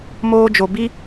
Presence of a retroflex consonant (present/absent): absent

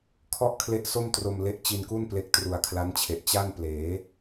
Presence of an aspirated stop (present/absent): present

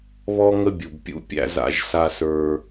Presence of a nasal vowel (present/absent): absent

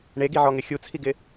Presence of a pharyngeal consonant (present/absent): present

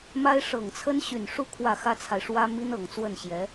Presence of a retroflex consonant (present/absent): present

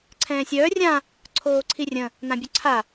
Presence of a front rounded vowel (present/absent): present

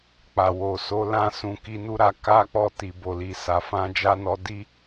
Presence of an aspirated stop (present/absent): absent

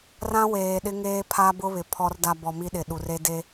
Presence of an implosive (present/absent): present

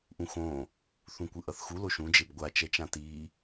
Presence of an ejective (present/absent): absent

